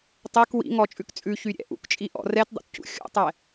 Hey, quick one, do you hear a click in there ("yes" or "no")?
no